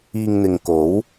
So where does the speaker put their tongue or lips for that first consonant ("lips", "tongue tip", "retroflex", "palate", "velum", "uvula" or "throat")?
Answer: velum